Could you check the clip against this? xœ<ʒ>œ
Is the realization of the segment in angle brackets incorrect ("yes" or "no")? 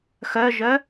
no